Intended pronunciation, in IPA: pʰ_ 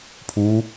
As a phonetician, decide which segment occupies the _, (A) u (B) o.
A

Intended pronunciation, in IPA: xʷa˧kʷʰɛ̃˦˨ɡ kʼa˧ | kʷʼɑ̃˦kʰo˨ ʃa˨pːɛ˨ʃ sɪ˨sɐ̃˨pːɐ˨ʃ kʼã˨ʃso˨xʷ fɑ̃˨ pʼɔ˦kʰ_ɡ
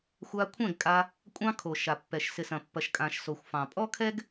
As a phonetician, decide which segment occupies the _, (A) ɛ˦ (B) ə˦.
A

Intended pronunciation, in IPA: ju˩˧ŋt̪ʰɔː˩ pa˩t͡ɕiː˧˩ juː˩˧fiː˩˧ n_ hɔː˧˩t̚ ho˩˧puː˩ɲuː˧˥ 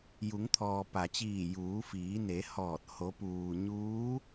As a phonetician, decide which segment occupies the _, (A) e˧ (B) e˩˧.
B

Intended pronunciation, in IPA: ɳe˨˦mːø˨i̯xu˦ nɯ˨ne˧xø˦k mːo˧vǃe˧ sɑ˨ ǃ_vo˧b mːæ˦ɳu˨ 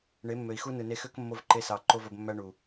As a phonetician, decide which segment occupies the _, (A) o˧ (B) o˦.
B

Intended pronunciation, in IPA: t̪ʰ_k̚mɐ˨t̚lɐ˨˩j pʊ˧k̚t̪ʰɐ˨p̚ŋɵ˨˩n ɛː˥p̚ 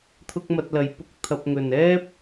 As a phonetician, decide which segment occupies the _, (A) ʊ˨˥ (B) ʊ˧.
B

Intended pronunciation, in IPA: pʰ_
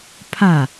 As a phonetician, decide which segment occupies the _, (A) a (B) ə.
A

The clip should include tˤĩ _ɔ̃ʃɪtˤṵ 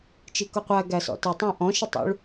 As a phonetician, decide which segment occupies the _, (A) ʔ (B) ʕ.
A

